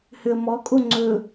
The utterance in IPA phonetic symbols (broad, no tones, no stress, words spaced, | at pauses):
høə̯mɔ kʼoŋ͡ǀɵ